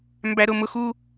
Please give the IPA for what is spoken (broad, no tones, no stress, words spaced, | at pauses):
mbæɾʊmʊx u